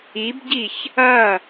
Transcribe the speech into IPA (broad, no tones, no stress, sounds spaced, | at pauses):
i b ɟ i ç | ɐ